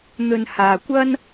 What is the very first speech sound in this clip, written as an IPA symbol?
n̪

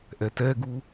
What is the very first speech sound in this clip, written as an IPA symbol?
ʔ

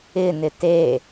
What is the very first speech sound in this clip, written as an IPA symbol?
ɪ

